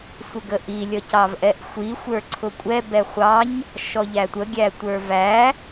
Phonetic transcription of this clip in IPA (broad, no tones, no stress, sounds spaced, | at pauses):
sʷ ɪ ɡ ə ʔ i lʲ ʌ c ɑ v ʔ ɛ ʔ xʷ i xʷ ə˞ ǀʰ ʊ kʷʼ ɛ b ɛ χʷ ɑ ɲ | ʃ ɔ ʎ æ tʷ ə ɡʲ æ tʷ ə˞ v æ